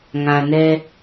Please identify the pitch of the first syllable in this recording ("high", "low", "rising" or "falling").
low